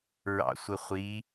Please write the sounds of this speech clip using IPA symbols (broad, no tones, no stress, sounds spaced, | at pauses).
ɹ ɑ̰ sʷ ə χʷ i